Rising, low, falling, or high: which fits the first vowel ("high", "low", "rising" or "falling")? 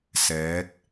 rising